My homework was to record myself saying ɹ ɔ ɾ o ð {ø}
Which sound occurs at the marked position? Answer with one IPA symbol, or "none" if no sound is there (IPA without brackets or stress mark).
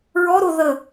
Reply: ə